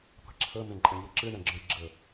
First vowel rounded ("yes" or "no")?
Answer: no